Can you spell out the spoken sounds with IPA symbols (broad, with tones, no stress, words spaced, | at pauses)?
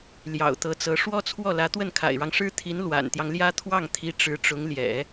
ljɑ̰˨˩ʊ̯t̪ɤ˧˥t͡sɤ˧˥ ʂwɔ˥t͡sʰwɔ˥˩lä˧˥ t̪wə˥˩nkʰa̰˨˩ɪ̯ɻɑ˦ŋʂɻ̩˥ t̪ʰi˧˥n lwa̰˨˩nt̪jɑ˦ŋljä˥ t̪ʰwɑ˥˩ŋt̪ʰi˧˥ ʈ͡ʂɻ̩˧˥ʈ͡ʂʊ˧˥ŋljɛ̰˨˩˦